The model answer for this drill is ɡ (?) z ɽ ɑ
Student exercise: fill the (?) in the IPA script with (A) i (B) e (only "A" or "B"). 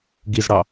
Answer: A